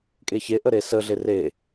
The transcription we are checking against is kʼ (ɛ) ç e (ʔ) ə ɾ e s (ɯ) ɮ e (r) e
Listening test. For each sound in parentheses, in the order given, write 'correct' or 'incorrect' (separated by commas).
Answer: incorrect, correct, incorrect, correct